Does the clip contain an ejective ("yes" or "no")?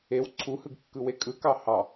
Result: yes